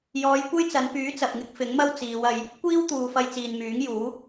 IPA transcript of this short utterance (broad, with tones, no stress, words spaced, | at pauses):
jɔː˨˧jkʷɐ˥jt͡sɐ˨˧npyː˨˥ t͡sɐ˨p̚ŋɪ˥k̚fɪ˨˥ŋmɐ˥w t͡siː˨˧wɐ˧j | kʷiː˥wt̪uː˨fɐ˧j t͡siː˨nmyː˨˥ŋjuː˨˥